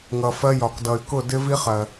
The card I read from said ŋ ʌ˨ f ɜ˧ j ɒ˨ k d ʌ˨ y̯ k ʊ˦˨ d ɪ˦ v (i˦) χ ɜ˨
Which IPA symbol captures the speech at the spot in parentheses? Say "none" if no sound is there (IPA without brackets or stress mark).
i˦